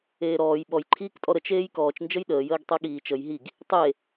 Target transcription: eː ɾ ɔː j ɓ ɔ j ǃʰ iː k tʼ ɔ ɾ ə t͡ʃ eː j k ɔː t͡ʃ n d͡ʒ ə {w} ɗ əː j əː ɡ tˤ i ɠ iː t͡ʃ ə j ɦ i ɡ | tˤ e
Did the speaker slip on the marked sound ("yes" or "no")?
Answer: yes